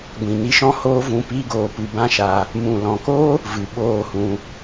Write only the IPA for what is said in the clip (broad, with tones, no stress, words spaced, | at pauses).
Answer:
ɡʷĩ˨ni˧ʃɔ̃˦ hoː˦vũ˧ pi˦ɡoː˧pɨ˧ bã˦ʃa˧ | mũ˨lɔ̃˨ko˦ | vɨ˨ɓoː˦˨hũ˧